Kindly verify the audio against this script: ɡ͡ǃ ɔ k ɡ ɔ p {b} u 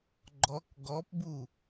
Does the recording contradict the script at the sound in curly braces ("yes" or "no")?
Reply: no